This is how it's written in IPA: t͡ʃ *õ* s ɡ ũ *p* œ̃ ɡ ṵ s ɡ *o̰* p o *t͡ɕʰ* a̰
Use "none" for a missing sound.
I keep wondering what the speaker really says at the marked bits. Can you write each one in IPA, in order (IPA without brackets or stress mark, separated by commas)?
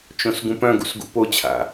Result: õ, p, ṵ, t͡ɕʰ